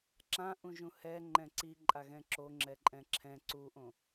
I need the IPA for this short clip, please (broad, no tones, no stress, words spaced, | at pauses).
ǁãʔũʒũ hɛ ŋ͡ǃɛ̃ǀi ǃʼaɣɛ̃ǁo ŋ͡ǁɛǃʼɛ̃ǁʰɛ̃ ǀuʔõ